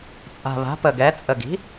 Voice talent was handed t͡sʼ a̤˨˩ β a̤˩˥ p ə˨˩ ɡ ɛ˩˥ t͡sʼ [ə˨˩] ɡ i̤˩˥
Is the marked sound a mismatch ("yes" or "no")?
no